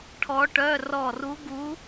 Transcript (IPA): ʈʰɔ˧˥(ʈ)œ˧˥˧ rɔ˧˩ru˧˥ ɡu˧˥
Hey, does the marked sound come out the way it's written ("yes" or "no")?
yes